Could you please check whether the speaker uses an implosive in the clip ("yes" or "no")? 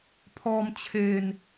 no